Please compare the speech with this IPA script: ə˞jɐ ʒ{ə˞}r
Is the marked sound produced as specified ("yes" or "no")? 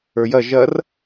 no